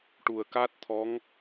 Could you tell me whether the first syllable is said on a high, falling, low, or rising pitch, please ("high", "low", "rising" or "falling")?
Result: low